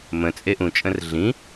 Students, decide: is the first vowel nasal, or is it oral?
nasal